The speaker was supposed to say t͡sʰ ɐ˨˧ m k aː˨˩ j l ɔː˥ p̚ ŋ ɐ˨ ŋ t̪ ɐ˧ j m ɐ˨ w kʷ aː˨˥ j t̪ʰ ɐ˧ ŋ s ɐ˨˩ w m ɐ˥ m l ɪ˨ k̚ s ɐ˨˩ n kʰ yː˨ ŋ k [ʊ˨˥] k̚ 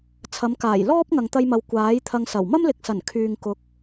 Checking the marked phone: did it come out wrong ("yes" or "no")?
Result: no